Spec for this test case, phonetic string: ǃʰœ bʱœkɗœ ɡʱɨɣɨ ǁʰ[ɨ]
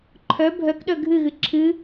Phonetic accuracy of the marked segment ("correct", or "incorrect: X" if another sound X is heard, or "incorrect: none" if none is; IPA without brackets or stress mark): correct